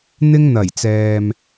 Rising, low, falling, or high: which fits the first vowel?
high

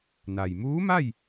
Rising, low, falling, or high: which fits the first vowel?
low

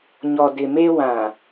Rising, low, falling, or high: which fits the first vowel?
low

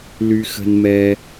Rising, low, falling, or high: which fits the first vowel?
high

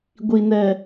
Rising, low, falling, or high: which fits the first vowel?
low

